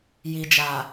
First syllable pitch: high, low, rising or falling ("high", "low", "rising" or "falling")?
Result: low